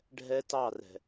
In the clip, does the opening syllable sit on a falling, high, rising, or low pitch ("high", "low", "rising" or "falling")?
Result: high